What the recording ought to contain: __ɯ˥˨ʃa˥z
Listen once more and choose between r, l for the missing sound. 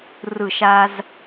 r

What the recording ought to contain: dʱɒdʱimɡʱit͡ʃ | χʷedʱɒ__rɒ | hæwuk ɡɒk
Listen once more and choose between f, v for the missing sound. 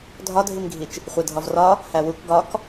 v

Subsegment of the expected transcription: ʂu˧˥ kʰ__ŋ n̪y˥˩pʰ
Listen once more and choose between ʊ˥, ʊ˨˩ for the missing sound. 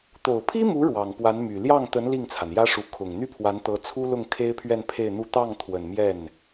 ʊ˨˩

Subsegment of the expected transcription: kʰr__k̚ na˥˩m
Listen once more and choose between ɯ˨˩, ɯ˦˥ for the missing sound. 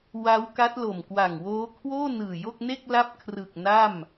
ɯ˨˩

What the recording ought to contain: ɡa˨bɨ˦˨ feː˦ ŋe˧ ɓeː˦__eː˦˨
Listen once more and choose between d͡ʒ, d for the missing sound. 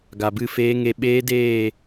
d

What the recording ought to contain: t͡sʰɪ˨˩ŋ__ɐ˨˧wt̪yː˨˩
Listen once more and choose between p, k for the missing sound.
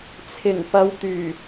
p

